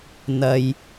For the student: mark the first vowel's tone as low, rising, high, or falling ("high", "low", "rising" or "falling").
low